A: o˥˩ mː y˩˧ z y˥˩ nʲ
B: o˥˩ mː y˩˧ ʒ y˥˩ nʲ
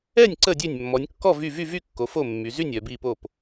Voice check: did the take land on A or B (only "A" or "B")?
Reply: A